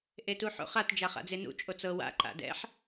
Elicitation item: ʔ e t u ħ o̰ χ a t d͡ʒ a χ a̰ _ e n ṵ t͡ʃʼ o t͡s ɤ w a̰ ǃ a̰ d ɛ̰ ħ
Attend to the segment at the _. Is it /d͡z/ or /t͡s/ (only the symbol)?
d͡z